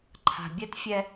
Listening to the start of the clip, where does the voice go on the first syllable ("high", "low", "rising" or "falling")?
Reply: low